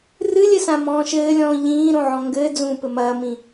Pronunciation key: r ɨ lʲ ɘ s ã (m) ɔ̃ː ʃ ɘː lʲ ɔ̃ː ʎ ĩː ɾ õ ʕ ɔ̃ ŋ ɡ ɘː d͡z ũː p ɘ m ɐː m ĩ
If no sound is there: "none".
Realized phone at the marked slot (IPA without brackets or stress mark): m